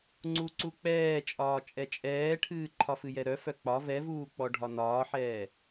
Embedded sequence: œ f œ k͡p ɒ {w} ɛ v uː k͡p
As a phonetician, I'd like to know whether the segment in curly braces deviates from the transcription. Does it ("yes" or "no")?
yes